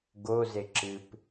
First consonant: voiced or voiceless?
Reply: voiced